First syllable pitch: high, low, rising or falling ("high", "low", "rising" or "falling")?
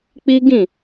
high